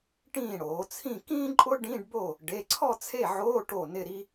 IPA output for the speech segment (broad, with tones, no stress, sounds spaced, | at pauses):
ʈ ĩː˥˩ ɽ oː˩˧ t͡sʰ ĩ˥˧ k ĩː˥ ǃʼ ʊ˥ ɖ ĩ˧˥˧ ɖ b o˥˩ | ɖ e˩˧˩ ǀʰ ɔ˥˧ t͡sʰ e˥˩ ʕ oː˧˥˧ ʈ o˥˩ n ɪ˥˧ ɾ i˥